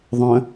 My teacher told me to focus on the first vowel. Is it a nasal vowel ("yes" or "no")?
yes